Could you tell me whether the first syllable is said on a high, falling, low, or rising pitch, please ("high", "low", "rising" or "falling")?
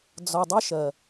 low